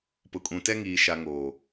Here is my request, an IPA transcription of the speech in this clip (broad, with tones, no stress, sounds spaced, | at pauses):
p ʊ˨ kʼ ũ˨ t ɛ˦ ŋ iː˨ ʃ a˨ ŋ oː˨